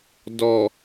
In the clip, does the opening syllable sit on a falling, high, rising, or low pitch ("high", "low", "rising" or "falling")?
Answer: low